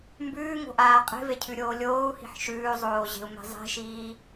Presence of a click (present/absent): absent